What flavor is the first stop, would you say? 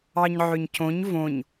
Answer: plain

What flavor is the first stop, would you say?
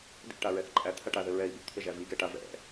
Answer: plain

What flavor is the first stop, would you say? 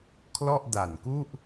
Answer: aspirated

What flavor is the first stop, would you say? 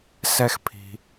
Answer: aspirated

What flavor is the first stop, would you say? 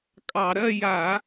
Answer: ejective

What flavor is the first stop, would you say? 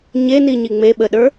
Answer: implosive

